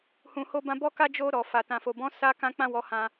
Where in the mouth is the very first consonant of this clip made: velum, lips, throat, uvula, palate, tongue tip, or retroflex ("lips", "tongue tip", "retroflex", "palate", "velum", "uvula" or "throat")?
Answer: throat